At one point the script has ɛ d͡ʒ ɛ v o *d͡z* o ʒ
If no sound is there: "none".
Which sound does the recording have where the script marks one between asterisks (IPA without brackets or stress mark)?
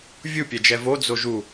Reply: d͡z